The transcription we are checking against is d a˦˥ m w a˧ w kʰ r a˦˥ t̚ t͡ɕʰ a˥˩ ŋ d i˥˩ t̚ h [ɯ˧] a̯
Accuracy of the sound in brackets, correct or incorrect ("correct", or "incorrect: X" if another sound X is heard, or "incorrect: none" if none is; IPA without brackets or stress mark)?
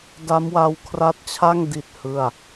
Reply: incorrect: ɯ˥˩